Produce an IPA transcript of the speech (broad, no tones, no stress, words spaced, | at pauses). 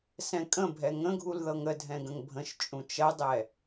sɛ̃kʼə̃ bʱɛŋə̃ɡʱul ðɤŋə dʱɛ̃ɡə̃ŋbʱə̃ʃ t͡ʃʼũt͡ʃɐdˤɛ